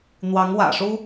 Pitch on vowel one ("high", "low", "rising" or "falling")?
rising